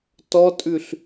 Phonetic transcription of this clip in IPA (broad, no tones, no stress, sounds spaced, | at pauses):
t ɔ tʼ ʉ ɬ